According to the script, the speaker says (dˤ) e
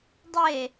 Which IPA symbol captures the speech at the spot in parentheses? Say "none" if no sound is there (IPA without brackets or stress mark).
dˤ